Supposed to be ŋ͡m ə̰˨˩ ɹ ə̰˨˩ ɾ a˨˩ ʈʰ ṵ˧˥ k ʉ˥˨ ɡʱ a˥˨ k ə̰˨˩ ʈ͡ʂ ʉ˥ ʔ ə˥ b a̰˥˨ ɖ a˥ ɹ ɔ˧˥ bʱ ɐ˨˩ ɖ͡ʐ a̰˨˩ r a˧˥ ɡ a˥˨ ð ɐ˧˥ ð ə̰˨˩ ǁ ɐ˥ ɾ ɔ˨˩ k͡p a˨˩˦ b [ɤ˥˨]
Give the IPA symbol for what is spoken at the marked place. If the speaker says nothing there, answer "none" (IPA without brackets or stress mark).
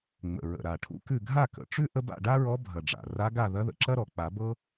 ɤ˥